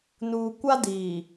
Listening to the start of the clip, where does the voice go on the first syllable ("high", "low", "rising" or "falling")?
low